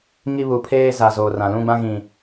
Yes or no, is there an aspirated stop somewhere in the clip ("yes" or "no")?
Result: yes